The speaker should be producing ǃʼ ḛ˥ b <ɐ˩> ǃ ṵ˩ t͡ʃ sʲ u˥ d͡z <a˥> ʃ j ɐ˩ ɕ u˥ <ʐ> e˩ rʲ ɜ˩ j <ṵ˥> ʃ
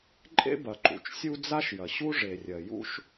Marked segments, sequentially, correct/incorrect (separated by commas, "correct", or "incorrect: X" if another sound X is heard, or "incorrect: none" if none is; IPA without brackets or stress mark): correct, correct, correct, correct